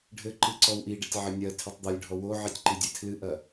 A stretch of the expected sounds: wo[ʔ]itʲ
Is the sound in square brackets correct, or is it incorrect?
incorrect